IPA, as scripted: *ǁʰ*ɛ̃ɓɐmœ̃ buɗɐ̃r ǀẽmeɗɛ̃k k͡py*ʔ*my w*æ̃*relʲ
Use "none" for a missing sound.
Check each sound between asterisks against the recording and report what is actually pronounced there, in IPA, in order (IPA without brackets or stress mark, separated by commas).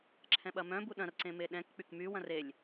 ǁʰ, k, ɐ̃